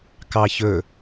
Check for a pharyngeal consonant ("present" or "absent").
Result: absent